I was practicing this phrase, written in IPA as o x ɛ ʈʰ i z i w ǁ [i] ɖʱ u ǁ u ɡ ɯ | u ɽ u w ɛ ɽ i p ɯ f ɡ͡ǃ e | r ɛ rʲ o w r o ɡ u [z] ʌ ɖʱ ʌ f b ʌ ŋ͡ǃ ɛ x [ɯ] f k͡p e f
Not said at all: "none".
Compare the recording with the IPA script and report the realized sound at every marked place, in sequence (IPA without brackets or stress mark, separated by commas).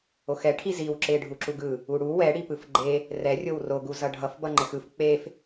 e, z, ɯ